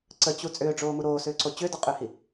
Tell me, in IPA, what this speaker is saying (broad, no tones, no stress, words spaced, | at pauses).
ǀət͡ɕu t͡sʼʏːɖ͡ʐoːmu ɾoːsʏːǀo t͡ɕʏːdɒqʼʏːhi